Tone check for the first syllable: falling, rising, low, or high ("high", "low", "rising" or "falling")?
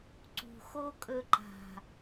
low